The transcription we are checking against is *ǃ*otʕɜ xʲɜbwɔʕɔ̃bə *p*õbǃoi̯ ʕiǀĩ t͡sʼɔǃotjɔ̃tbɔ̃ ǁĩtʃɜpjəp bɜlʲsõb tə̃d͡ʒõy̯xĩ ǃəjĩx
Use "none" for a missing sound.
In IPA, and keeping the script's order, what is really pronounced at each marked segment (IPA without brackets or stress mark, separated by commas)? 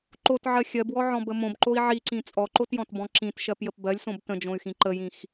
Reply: ǃ, m